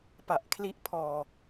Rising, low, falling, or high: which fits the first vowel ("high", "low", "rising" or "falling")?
low